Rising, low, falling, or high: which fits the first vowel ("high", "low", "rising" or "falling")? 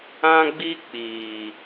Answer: high